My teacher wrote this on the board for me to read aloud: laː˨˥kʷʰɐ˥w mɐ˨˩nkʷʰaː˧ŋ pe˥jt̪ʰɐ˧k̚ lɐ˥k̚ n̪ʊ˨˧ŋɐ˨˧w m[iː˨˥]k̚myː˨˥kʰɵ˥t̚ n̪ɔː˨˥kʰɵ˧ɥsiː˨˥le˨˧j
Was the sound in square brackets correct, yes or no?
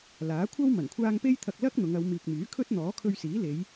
no